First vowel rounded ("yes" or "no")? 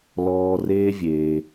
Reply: yes